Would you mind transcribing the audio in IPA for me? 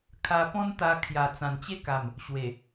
kʰ a˧ p ɔ̃˦ n t̪ a˧ kʰ j a˨˩ t͡s ã˨˩ n t͡ɕ e˦ k a˨˩ m | ɕ w e˨˩

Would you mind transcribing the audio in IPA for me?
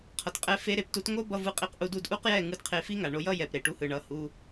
qʰ ʌ˨ t qʼ ɛ˧ f e˦ ɾ e˧ p t u˦ t ŋ o˦ b ʌ˧ v ɯ˧ qʼ i˧ q ʔ u˧ d u˧ d ʔ u˦ q j ɛ˦˨ ŋ ɯ˦ d qʰ e˧ f i˦ ŋ a˨ ɳ o˧ j ʌ˦ j ɛ˨ p ɾ e˨ ʈ u˧ h ɯ˨ ɳ ʌ˧ h u˧

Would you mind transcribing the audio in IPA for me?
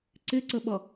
ǀ ɪ ǀ ə ɓ ʌ

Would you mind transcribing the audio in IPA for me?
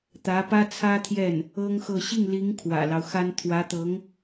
t̪ ä˧˥ p ä˥ t͡sʰ ä˥ t̪ʰ j ɛ˥˩ n | ɤ˥ ŋ x ɤ˥˧ ɕ i˥˩ ŋ l i˧˥ ŋ kʰ w ä̰˨˩ l ɑ˦ ʊ̯ x a˥ n t̪ʰ w ä˧˥ t̪ ɤ˧˥ ŋ

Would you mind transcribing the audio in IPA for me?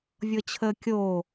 vʲ ɤ t͡ɕʰ əː kʲ o

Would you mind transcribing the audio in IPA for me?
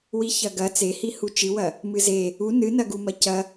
w i ç ɐ ɡ ɐ t͡s e h i h u t͡ʃ ɨ w ɐ | m ɨ z e | u n ɨ n ɐ ɡ u m ɐ c ɐ

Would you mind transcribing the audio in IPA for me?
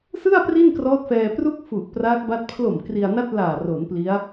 s ɯ˥˩ a̯ p r i˥˩ n k r ɔː˦˥ t̚ f ɛː˧ p r u˥˩ k̚ f u˨˩ ʔ p r a˦˥ k̚ b a˦˥ t̚ pʰ l o˨˩ m k r i˧ a̯ n a˥˩ t̚ l aː˨˩ r o˩˦ n p l i˦˥ a̯

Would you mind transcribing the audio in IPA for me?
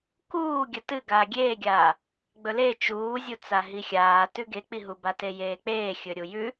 k uː ɡʲ ɐ t ɨ ɡ aː ɡʲ eː ɡʲ aː | ɡ͡b ɵ l e t͡ʃ uː zʲ u t͡s a ɦ i xʲ aː t ʉ ɡ e k͡p i ɦ u b a t e j eː k͡p eː xʲ ɵ ɾʲ u j ʉ

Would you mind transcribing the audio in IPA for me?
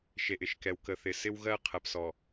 ʃ e˨ ʔ ɪ˨ ʃ k ɛ˨ w k ə˨ θ ɪ˨ s ɪ˦ w ɣ ɜ˦ qʰ ɜ˨ p s ɔ˨

